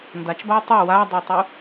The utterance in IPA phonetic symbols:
ndat͡ʃbaw tˤø wadˤøtˤu

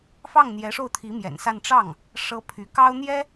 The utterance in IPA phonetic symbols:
fɑ˥˩ŋn̪jɛ˧˥ ʂo˥˩ʊ̯t̪ʰi˧˥mjɛ̰˨˩nsa˥˧n ʈ͡ʂɑ˥˩ŋ | ʂɤ˥pʰy˧˥ kɑ˥ʊ̯n̪jɛ˥

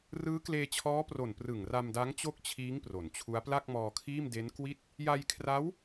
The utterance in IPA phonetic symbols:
rɯː˦˥kleː˧t͡ɕʰɔː˦˥pro˨˩n prɯ˨˩ŋra˧mda˦˥ŋ t͡ɕo˥˩k̚t͡ɕʰiː˦˥ŋ pro˩˦nt͡ɕʰu˦˥a̯ pla˥˩k̚mɔː˧kʰiː˥˩mde˦˥n kwi˥˩t̚ | ja˧jkʰra˦˥w

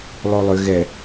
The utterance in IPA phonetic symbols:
lˠolˠʏ ɣɛ

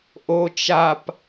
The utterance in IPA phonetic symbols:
ʔo t͡ʃap

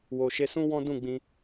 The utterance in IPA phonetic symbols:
wo˨ʃe˧sũ˦ wɔ̃˦ dũ˦˨ɡ͡bĩ˧

